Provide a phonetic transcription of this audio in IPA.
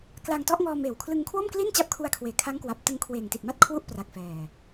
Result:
k l a˧ ŋ t ɔ˦˥ ʔ ŋ ɔː˧ m eː˨˩ w kʰ l ɯ˧ ŋ kʰ w o˥˩ m k l i˥˩ n t͡ɕ a˦˥ p̚ kʰ u˧ a̯ kʰ w eː˨˩ kʰ a˦˥ ŋ k w a˨˩ p̚ t ɯ˧ ŋ kʰ w eː˨˩ ŋ t i˨˩ t̚ m a˦˥ t̚ kʰ w u˦˥ ʔ p r a˨˩ k̚ f ɛː˨˩

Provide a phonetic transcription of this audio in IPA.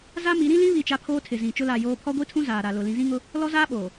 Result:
z a˦ m i˨˦ ɾ ĩ˦ l ĩ˦ β i˦˨ t͡ʃ a˦ pʰ oː˦ tʰ ɪ˨ z ĩ˨ t͡ʃ ʊ˦ l a˦˨ j oː˦ pʰ ɔ˦ ɡʷ i˦ tʰ ũ˦ z aː˨ ɾ a˨ l ʊ˨ l ĩ˨ z ĩ˦ ŋ ʊ˦ | l ɔ˦ z aː˦ ɓ oː˨

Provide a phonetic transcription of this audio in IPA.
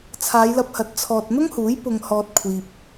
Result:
t͡sʰ aː˨˧ j l ɐ˧ p̚ h ɐ˨˥ t̚ t͡sʰ ɔː˨ t̚ n̪ ʊ˥ ŋ h uː˨˥ j p ʊ˨ ŋ h ɔː˨ t̚ kʷʰ iː˨ p̚

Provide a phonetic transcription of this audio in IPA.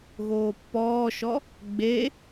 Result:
ɣ oː pː ɔː ʃ ɔ | ɡ͡b e

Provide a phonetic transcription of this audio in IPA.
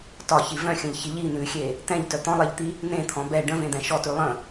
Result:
t ɒ ç i v œ̃ xʲ ə̃ ʎ ç i ʎ i n̪ ʉ xʲ e | t̪ ɛ̃ ʎ t œ t̪ ɔ̃ lˠ ɛ ʎ t̪ i | n̪ ẽ t̪ʰ ɔ̃ b ɛ ɖ ə̃ v ẽ d̪ ɛ̃ ʃ ɔ t ʉ lˠ ə̃

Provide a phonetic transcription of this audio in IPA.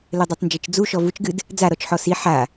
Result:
l ɘ dˤ i tˤ n d͡ʒ ɘ t͡ʃ d͡z u ʃ ɔ v u t͡ʃ ɡ ɨ d | d͡z a ɾ ɔ t͡ʃ ħ ɔ s i ħ a

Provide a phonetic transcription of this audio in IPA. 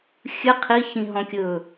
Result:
xʲ ɨ qʰ i ç ĩ ɦ ɔ̃ kʲ ɵ

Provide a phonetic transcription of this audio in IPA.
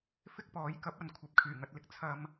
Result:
f ɪ˥ k̚ p ɔː˨˥ j k ɐ˨˥ p̚ ɐ˨ n kʷʰ ɐ˨˥ p̚ kʰ yː˨˩ ŋ ɐ˧ t̚ l ɪ˧ k̚ t͡sʰ ɐ˨ m

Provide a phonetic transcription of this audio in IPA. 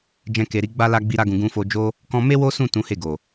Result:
d͡ʒ ɛ̃˧ k e˨ ɾ i˨˦ ɡ͡b a˦ l a˦ ɡ͡b i˦ ɾ a˦ ɡ ũ˧ ɡ ũ˧ f o˧ d͡ʒ o˦ | k ɔ̃˧ m e˦ w o˦ s ũ˦˨ t ũ˨˦ h e˦˨ ɡ o˨

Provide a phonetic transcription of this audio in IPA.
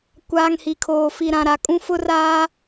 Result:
kʷ aː˨ ŋ h i˨ kʰ oː˨ f i˨ ɾ ã˨ ɾ a˨ kʼ ũ˦ f ʊ˦ r aː˦

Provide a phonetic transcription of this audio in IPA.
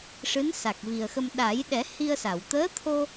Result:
ʂ ɨ˧˥ n s a˨˩ k̚ v i˨˩ ə̯ x ə˧ m ɗ a˨˩˦ j ɗ ɛ˨˩˦ h i˧ ə̯ s a˨˩˨ w t̪ əː˧˥ t̪ʰ o˧

